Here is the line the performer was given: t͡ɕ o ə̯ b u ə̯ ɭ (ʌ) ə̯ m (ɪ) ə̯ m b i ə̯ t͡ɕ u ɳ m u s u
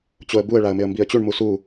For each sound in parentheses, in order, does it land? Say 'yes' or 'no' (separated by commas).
no, yes